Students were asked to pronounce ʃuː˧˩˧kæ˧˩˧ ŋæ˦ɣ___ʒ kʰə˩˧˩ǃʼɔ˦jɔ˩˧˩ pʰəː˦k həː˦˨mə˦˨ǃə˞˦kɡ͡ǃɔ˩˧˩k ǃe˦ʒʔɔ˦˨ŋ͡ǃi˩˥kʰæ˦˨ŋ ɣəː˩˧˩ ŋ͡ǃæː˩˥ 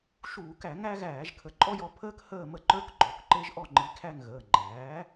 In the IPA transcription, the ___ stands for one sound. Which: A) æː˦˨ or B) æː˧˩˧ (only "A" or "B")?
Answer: B